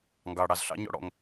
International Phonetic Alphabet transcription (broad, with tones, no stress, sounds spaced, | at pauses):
ŋ ɡ ɑ˩ ɽ ɑ˩ z ɬ ɑ̰˧˥˧ ɲ ɔ̰˦˥ ɽ ɔ̰˩ ŋ